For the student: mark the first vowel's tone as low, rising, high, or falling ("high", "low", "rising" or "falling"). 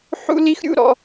high